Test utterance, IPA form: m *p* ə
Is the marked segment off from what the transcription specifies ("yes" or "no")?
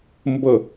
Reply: yes